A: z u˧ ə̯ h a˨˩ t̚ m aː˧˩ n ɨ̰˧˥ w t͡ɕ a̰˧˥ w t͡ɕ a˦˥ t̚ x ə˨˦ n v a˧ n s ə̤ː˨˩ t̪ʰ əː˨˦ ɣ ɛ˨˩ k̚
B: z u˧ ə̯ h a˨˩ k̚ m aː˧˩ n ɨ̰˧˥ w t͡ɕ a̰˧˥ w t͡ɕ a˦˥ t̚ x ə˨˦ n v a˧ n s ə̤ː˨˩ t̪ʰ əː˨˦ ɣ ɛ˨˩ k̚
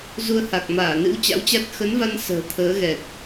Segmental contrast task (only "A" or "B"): B